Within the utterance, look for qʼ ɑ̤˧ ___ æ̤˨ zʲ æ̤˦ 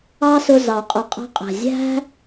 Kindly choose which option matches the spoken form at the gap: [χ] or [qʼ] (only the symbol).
qʼ